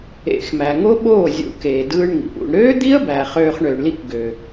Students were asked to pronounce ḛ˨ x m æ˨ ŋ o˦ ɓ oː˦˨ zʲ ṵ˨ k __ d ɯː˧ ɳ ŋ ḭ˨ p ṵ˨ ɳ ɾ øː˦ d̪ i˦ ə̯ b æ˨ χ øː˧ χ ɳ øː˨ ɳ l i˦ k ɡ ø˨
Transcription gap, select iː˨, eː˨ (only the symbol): eː˨